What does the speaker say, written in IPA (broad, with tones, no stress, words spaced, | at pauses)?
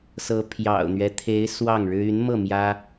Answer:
sɤ˧˥ pʰjɑ̰˨˩ʊ̯n̪ɥɛ˦t̪ʰe˧˥ɪ̯ swɑ˥˩ŋɻɻ̩˥ y˧˥nmɤ˥˩ mjä˥